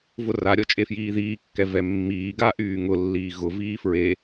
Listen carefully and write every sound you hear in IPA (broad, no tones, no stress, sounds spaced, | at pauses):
v ʊ r a ɾʲ ɔ t͡ʃʼ e f j iː ð iː kː ɛ v ɛ mː iː ɡ a ʔ yː ŋ ʊ lː iː ɣ ʊ v iː f ɹ e